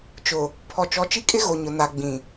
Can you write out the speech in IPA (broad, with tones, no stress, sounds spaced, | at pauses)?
t͡ʃ ʊ˨ | pʰ ɔ˨ t͡ʃ ɔ˨˦ t͡ʃ i˦ kʼ ɪ˦ ɣ o˨ ɲ ʊ˨ n a˨ ɡ͡b ĩ˨